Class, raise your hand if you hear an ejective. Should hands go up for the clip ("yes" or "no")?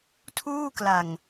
no